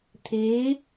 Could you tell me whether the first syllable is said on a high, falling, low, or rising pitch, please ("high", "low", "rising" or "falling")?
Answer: rising